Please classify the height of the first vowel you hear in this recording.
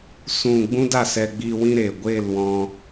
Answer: high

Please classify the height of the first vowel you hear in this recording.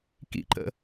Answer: high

